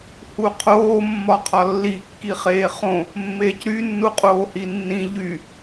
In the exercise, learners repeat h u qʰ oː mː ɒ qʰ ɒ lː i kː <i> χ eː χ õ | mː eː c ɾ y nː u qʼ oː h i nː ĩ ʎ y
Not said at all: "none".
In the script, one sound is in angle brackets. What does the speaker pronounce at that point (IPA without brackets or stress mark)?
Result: i